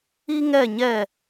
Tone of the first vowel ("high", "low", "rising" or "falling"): high